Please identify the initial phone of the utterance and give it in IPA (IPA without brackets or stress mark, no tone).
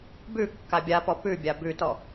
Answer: b